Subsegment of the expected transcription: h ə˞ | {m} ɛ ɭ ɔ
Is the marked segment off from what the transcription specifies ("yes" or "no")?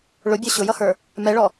no